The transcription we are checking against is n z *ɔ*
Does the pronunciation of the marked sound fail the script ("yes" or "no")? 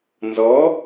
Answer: no